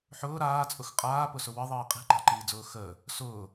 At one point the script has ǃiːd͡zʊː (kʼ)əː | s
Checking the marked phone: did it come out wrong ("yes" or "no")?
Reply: yes